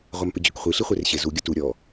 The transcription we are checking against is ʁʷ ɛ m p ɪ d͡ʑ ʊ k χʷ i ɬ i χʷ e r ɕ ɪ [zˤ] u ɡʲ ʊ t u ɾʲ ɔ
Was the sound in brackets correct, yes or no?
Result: no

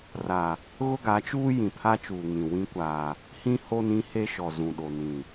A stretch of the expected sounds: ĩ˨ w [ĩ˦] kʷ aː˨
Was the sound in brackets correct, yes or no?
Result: yes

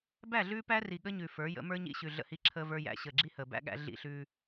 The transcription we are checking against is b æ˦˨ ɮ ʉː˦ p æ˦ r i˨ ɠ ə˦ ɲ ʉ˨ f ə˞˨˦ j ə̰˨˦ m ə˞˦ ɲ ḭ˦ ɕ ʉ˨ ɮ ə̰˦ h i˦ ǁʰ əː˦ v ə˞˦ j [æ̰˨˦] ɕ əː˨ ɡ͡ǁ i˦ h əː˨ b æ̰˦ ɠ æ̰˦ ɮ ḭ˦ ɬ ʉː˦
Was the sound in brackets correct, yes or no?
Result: yes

